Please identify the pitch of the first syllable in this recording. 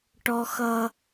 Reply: high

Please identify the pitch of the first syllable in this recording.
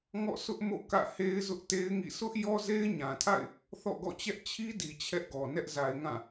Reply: falling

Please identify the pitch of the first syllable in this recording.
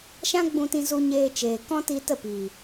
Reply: high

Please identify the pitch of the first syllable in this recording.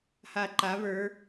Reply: low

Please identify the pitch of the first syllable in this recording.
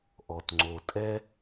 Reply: low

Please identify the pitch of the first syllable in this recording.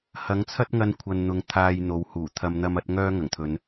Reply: rising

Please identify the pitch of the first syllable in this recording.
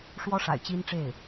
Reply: high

